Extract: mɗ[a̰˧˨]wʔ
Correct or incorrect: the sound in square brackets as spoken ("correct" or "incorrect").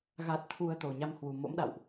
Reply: correct